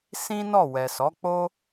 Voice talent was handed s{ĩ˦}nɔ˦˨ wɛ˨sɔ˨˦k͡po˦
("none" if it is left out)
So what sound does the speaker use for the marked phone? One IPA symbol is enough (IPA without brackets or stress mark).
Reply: ĩ˦